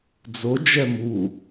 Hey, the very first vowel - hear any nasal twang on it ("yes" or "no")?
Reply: no